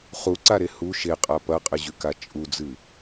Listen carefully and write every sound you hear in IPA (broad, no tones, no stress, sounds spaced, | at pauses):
χ u ǀ a ɾ e h u ʃ e qʼ a p ɐ qʼ ɨ ʑ ʉ k a t͡ʃʼ u d͡z ɨ